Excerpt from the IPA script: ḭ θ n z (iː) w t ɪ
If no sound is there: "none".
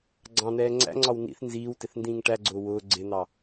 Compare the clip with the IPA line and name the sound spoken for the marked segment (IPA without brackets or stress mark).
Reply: iː